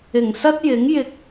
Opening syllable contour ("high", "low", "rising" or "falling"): low